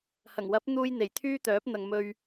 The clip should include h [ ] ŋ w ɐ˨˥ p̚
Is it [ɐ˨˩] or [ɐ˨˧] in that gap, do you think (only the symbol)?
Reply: ɐ˨˩